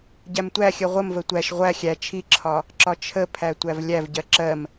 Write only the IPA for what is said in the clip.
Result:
ɟ æ m tʷ æ xʲ ɜ ʁʷ ə m v ə tʷ æ ʃ ʁʷ æ xʲ æ t͡ʃʰ i ǁʰ ɒ | ǁ ɒ t͡ʃʰ ə pʰ æ tʷ æ v lʲ æ v ɟ ɜ ǁ ɜ m

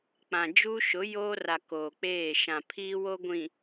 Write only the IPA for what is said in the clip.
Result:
k͡p ã˨ d͡ʒ u˦ ʃ ʊ˨˦ j oː˦ r a˨ k oː˨ k͡p eː˦˨ ʃ ã˨ pʰ iː˦ w o˦ ɡʷ ĩ˨

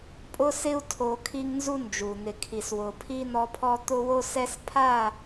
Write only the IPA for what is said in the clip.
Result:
pʼ ʊ˦ s ɪ˦ u̯ tʰ o˦ kʰ i˦ ŋ n z u˦ n d͡ʒ u˨ n̪ ɪ˨ kʰ i˨ s w ʊ˨ pʰ i˦ n ɔ˦ pʰ ɔ˦ t̪ ʊ˦ w o˦ s ɛ˦ s pʰ a˦˨

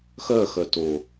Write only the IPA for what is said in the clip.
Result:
x œ x œ t o

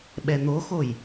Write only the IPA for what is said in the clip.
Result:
ɓ ɛ n̪ o x o j

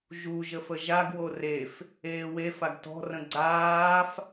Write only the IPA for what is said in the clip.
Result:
ʒ u ʒ ə f ə ʒ a ɡ w o r e f | eː w e f a ɡ t ɔ̤ r ə̃ ɡ͡ǀ aː f

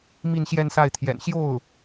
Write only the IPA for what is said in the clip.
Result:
m i˥˧ n ɕ j ɛ˥˧ n s a˥˩ ɪ̯ t̪ʰ j ɛ̰˨˩ n ɕ j o˥˩ ʊ̯

